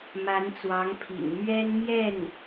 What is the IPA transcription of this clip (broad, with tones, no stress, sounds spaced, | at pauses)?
m a˧˥ n t͡s w ɑ˧˥ ŋ pʰ ḭ˨˩ ŋ m ɥ ɛ˥ n m j ɛ˥˩ n